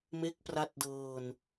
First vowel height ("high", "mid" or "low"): mid